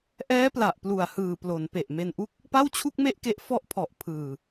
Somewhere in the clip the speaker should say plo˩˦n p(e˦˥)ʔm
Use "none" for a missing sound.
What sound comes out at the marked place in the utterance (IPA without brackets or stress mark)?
e˨˩